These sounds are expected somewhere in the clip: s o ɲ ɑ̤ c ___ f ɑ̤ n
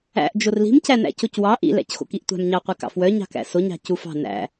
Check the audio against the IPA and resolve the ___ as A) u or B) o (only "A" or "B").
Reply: A